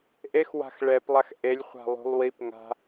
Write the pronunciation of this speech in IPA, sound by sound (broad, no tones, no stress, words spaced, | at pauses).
ʔexwa̤x ɭɛplˠax ʔelʲχʷa̤ lˠṳlˠwipŋa̤